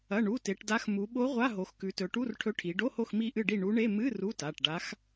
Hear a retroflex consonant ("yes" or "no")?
yes